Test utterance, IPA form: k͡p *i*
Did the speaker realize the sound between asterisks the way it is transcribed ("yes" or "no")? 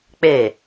no